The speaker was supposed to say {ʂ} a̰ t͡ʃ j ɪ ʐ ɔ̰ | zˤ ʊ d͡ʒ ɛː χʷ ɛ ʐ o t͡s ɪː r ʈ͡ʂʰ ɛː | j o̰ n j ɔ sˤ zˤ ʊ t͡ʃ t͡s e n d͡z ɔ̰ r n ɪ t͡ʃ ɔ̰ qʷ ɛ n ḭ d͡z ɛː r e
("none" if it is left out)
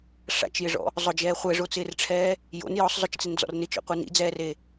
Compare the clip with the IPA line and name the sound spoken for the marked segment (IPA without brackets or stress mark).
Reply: ʂ